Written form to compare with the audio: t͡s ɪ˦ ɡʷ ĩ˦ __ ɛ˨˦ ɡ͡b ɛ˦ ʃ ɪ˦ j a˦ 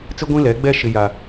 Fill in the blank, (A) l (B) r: A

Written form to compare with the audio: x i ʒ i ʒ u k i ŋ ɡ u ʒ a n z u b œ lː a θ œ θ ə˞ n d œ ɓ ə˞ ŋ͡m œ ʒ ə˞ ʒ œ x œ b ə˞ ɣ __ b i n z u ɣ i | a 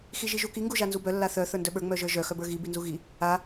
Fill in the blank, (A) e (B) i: B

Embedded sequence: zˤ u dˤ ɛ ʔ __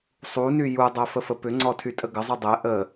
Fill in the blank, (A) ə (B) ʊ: A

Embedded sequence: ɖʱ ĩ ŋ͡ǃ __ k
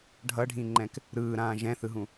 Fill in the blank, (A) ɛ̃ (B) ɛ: A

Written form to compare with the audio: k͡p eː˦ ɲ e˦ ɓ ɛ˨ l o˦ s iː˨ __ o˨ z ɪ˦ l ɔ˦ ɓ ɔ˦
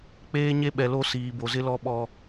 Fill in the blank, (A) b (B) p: A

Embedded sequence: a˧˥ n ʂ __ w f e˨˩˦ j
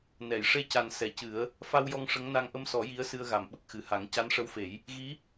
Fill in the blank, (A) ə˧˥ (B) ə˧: A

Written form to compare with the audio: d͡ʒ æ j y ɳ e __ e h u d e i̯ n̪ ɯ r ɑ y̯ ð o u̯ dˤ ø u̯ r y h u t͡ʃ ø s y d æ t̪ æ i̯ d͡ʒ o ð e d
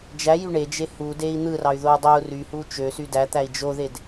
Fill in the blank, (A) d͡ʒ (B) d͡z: A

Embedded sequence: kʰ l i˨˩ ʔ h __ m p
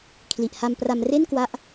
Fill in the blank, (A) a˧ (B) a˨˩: A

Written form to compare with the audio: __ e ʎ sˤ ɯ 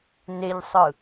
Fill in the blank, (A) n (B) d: A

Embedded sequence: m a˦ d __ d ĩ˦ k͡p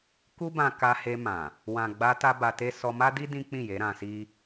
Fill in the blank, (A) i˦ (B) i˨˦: A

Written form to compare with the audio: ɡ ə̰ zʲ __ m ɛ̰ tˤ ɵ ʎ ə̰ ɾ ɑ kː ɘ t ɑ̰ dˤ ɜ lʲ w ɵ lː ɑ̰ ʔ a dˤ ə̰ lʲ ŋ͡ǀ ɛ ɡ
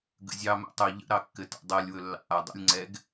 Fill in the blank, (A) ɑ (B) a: A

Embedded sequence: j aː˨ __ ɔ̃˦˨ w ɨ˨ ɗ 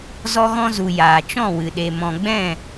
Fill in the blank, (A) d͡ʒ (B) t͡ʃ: B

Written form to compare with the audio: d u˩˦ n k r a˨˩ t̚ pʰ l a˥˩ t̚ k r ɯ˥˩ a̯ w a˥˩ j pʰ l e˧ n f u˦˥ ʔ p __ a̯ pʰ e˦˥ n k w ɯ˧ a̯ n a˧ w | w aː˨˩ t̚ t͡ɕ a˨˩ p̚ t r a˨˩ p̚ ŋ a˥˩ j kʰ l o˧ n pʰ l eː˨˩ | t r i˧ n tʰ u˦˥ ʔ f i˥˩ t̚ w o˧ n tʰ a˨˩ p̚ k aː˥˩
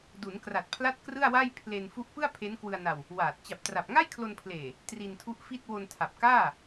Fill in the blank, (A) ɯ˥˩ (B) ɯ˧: A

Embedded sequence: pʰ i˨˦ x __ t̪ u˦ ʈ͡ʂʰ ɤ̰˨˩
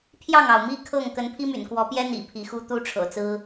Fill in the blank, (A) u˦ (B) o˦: A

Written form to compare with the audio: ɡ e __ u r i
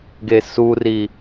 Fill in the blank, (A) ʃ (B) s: B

